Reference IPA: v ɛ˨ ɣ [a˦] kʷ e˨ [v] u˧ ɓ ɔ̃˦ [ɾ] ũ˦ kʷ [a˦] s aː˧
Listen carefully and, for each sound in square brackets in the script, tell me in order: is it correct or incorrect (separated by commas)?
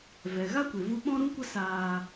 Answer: correct, correct, correct, incorrect